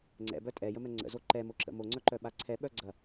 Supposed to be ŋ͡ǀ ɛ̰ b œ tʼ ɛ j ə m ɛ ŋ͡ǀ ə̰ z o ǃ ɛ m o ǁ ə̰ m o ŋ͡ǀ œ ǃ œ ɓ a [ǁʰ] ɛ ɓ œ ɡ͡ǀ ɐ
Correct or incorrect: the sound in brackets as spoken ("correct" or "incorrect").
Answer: incorrect